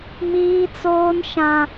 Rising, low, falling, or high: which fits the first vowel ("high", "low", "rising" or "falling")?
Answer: high